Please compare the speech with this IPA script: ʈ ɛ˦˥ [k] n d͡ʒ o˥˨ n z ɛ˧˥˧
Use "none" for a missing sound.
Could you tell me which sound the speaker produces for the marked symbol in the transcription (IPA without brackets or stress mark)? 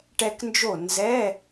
k